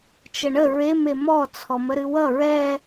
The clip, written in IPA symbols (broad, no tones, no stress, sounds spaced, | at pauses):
t͡ʃ ə ɳ ə ɹ e m e m ɔ t͡sʰ ɔ m ə ɾ ɨ w ʌ ɹ ɛ